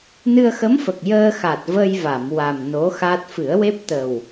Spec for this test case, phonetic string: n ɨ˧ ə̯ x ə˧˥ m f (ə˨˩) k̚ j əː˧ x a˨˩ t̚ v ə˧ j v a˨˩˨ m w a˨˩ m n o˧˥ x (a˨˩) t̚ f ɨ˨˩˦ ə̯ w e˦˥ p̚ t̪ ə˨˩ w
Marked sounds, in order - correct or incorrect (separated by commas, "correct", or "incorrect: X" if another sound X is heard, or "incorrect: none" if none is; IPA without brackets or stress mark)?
correct, incorrect: a˦˥